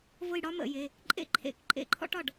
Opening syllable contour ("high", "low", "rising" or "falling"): falling